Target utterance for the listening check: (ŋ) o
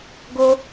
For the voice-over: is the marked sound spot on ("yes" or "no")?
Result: no